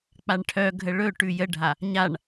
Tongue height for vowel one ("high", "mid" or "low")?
low